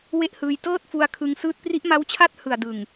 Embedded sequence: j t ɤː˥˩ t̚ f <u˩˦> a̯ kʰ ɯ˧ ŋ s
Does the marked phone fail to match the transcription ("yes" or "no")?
yes